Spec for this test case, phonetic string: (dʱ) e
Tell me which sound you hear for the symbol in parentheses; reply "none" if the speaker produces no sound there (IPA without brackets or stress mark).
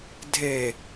dʱ